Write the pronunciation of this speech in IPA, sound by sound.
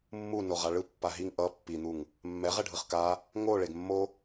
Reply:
mː u n o ʁ a ɭ ɯ pː a ɦ i ŋ ʔ ʌ pː i n̪ u ŋ | mː ɛ ʁ ɛ ɖʱ ɯ χ k a | ŋ o ɭ e ɡ mː o

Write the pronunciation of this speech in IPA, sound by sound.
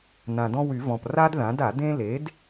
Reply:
n ã˩ d ɔ̃˦ w y˨˩˦ v ɔ̃˩ p r a˦ d ð ã˩˥ d a˨˩˦ d ẽ˦ l e˩˥ d

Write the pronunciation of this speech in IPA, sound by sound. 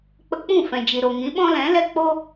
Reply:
k͡p ə˧ k͡p ũ˦˨ f ɛ̃˨ d͡ʒ i˨ ɾ o˨ ŋ ĩ˨˦ ɓ ɔ̃˦ l ɛ̃˨˦ l ɛ˦ k͡p o˦

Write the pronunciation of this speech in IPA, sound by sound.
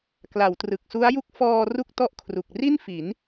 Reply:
k l a˩˦ w t r ɯ˨˩ k̚ s u˦˥ a̯ j u˥˩ k̚ f ɔː˧ r u˥˩ k̚ t ɔ˥˩ ʔ kʰ r u˨˩ k̚ r i˥˩ n f i˩˦ n

